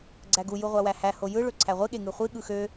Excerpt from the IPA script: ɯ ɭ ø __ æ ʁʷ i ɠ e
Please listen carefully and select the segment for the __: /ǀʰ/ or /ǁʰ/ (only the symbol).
ǀʰ